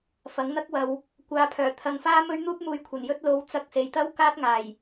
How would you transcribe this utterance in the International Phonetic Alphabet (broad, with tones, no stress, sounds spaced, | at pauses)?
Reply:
f ɐ˨˥ ŋ n̪ ɐ˥ k̚ w ɐ˨˧ w | kʷ aː˨˧ pʰ œː˨˩ t̪ʰ ɐ˧ ŋ f aː˥ m ɵ˥ ɥ n̪ uː˥ p̚ m uː˧ j kʷʰ ɐ˨˩ n j ɵ˥ t̚ l o˨˥ w t͡s ɐ˧ k̚ s e˨ j t̪ ɐ˥ w k aː˥ t̚ ŋ aː˨˩ j